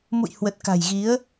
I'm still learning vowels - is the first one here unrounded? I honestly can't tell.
no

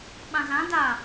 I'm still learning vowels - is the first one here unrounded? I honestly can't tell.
yes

